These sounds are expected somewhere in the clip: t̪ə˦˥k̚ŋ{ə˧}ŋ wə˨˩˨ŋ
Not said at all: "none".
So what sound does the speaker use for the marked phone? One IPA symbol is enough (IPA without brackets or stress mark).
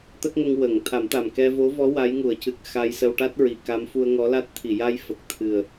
ə˧